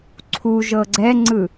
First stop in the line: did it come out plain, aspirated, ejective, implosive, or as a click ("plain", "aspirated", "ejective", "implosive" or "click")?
click